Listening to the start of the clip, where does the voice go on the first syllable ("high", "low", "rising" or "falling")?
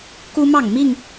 high